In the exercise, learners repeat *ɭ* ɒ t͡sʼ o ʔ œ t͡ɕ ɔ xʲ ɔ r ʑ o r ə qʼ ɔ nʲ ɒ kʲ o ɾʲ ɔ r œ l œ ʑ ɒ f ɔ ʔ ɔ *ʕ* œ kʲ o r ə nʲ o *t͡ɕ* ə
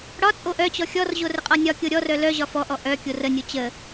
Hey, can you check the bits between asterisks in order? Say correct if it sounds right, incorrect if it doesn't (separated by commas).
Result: incorrect, incorrect, correct